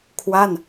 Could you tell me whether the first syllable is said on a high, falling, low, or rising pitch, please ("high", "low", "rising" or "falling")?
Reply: falling